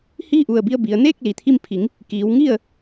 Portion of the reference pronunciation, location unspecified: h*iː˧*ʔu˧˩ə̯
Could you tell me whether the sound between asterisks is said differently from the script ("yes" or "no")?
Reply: yes